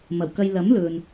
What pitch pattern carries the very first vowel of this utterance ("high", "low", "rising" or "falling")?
low